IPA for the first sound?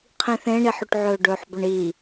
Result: qʰ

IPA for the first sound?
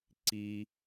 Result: ǀ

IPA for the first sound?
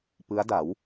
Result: p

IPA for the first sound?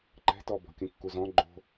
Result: ǃ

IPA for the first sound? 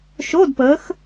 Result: ʃ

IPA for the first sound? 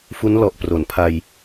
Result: f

